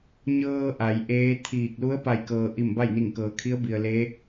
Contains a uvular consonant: no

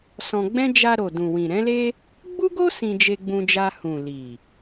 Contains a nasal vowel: yes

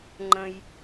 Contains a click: yes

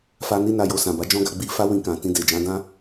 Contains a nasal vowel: yes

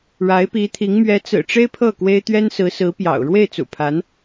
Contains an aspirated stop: yes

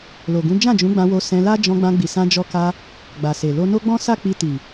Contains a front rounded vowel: no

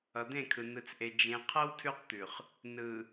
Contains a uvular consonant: yes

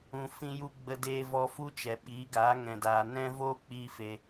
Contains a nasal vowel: yes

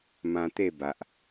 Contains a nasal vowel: yes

